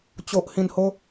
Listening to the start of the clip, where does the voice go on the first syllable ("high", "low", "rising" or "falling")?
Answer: low